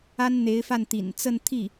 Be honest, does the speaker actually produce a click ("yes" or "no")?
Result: no